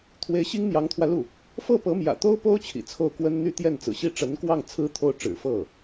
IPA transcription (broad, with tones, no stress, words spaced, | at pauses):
t̪ʰwe˧˥ɪ̯ɕi˥ŋ n̪jɑ˧˥ŋt̪ʰwä˧lu˥˩ | fɤ˥˩ pɤ˧˥mjä̰˨˩t̪o˥ʊ̯po˥ʊ̯ t͡ɕʰḭ˨˩t͡sʰo˥˩ʊ̯ kwə˥n n̪y˥˧t̪jɛ˥˩nt͡sɹ̩˨˩ɕi˥˩ ʈ͡ʂə˧˥nkwɑ˥˩ŋ t͡sʰɹ̩˥t̪ʰo˥˩ʊ̯ʈ͡ʂɻ̩˨˩ fɤ˥˩